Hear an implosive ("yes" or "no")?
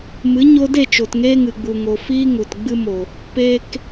no